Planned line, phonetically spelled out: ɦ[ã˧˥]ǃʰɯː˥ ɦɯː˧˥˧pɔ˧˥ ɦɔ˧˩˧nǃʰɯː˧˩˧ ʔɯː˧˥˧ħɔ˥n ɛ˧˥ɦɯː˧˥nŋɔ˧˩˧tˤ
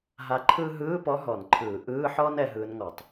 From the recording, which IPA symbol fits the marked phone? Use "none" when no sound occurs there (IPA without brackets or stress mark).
a˧˥